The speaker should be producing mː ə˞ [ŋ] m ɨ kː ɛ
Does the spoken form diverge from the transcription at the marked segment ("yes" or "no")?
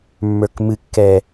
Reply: yes